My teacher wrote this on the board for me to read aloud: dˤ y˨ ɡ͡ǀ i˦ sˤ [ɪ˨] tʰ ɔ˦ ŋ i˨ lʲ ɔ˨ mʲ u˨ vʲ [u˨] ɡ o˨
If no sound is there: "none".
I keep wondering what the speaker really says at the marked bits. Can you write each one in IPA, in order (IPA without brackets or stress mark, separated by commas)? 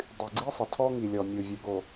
ɪ˨, u˨